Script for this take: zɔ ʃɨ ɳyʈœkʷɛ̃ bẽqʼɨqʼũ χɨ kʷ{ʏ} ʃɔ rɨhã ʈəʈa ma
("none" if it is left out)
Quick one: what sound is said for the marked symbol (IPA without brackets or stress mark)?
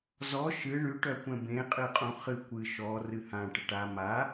ɨ